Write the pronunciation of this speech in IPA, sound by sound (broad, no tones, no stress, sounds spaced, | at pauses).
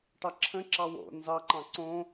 ʈ ɑ ǁʰ ə̃ ǁ ɑ w o̰ n z ɑ ǃ ɑ̃ ǀ õ